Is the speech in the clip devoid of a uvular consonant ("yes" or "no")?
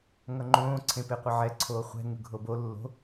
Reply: no